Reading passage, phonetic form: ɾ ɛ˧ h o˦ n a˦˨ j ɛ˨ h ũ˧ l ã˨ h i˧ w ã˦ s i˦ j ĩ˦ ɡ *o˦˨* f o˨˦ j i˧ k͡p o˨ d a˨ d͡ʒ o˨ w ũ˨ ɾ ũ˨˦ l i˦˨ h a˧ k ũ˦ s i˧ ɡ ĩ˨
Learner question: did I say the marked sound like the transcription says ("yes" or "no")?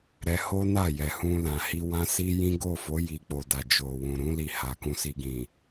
yes